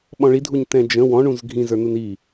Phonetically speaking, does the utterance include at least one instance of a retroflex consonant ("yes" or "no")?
yes